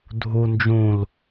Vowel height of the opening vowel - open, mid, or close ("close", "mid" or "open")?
close